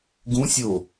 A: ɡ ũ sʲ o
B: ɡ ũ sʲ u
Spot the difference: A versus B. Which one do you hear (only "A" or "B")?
A